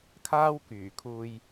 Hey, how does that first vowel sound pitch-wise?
high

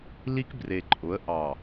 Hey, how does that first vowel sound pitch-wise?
high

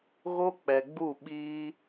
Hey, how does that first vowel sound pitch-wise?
high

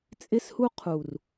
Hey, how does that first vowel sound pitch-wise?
high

